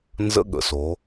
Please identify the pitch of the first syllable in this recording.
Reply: high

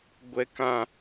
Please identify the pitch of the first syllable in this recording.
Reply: high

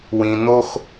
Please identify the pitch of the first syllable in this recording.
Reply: low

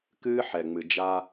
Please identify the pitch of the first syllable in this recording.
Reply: high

